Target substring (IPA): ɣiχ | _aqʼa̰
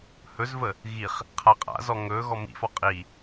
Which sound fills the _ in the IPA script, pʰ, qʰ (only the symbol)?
qʰ